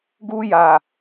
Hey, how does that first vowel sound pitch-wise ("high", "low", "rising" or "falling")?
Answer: high